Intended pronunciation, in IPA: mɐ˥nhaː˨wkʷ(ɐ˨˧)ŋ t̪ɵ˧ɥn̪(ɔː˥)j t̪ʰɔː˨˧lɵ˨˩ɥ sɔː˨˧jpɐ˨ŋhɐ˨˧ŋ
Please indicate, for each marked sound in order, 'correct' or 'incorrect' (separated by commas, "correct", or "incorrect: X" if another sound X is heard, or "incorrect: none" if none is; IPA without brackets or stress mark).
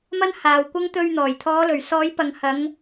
incorrect: ɐ˥, incorrect: ɔː˨˩